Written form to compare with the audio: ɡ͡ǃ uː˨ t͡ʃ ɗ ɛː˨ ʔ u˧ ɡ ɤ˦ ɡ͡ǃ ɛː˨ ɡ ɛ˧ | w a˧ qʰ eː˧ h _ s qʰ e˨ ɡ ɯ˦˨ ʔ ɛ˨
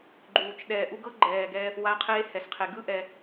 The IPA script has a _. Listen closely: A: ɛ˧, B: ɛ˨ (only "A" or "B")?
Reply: B